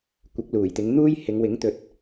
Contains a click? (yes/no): no